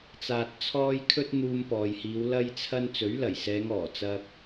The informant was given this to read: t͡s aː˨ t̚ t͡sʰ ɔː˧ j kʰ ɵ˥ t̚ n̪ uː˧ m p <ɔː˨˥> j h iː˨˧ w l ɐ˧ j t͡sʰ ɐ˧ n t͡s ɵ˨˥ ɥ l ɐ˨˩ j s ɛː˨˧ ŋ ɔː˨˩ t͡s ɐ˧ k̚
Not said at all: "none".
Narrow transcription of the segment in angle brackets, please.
ɔː˨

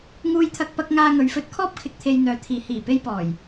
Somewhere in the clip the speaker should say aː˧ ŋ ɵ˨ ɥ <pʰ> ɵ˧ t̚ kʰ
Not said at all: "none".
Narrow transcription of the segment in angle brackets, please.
f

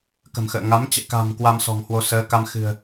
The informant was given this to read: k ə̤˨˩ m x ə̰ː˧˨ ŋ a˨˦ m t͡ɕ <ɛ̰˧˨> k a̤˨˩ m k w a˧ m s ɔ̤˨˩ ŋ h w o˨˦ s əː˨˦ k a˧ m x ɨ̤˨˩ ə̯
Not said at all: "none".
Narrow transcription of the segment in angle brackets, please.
ɛ̰˧˨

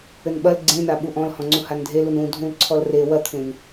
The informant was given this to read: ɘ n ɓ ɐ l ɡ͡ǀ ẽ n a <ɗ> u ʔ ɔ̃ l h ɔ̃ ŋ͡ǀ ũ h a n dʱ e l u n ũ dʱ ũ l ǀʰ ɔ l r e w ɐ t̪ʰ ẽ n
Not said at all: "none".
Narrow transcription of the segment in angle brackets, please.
ɓ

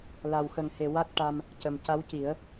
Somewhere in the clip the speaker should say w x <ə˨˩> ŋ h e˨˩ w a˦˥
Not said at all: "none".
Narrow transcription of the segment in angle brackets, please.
ə˨˩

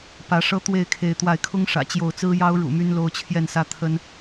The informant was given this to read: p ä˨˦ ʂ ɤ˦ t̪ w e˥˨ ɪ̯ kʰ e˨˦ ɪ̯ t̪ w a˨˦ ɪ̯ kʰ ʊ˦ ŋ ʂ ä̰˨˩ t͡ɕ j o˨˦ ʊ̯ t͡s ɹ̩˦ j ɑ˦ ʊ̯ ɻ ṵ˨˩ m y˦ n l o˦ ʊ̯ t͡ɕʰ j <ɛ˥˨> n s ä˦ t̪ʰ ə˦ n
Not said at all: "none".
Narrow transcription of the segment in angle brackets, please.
ɛ˥˨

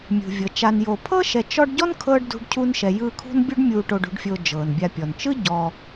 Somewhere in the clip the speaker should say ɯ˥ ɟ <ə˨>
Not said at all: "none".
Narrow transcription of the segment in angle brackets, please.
ɔ˨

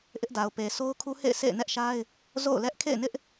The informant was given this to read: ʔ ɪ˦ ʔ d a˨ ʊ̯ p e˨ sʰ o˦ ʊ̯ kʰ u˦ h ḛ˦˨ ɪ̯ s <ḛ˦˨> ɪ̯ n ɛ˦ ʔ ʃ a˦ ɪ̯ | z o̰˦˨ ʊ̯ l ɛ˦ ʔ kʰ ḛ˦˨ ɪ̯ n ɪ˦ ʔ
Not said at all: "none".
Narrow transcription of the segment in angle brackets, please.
ḛ˦˨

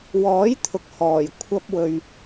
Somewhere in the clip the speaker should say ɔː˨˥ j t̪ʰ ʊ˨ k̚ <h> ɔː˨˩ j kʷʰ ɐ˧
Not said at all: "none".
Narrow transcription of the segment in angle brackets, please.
h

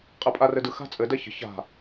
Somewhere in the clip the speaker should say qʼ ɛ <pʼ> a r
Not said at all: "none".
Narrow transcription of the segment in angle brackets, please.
pʼ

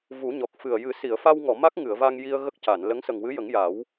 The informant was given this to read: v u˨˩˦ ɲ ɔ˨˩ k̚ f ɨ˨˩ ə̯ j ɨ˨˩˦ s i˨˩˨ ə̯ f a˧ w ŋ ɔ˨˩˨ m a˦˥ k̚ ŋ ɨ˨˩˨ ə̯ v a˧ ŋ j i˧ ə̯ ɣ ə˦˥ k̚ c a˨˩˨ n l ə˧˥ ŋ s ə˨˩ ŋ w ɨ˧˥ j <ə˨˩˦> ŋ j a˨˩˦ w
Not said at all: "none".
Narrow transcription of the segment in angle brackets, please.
ə˨˩˦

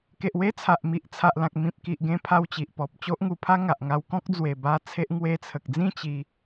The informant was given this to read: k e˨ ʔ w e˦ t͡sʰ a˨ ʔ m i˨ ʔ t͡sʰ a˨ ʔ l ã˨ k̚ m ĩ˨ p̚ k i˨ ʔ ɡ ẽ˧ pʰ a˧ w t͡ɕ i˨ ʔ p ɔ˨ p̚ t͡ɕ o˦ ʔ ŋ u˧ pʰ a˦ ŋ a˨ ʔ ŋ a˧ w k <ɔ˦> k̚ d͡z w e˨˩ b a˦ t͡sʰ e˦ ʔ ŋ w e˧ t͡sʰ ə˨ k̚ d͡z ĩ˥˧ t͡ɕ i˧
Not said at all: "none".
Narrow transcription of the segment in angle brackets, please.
ɔ̃˦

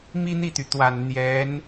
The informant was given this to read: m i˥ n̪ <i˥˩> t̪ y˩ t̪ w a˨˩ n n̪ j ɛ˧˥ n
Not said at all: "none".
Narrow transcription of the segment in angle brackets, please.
i˥˩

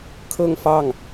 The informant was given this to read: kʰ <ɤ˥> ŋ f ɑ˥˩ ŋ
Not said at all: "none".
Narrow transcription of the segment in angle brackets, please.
ɤ˥˧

